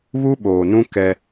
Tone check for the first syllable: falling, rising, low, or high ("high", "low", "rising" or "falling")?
high